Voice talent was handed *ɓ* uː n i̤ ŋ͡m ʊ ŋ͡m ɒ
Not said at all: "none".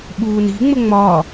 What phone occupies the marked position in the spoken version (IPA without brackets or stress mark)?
ɓ